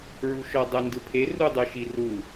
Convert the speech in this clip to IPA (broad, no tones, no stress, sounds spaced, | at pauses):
ɹ u ʃ ɔ dˤ œ n d ɯ pʰ e r u dˤ ɯ ʃ i r u